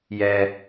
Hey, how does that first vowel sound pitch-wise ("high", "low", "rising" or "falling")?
low